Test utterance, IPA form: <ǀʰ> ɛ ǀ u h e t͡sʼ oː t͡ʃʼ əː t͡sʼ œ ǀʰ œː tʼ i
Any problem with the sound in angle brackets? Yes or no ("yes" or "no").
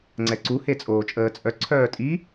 yes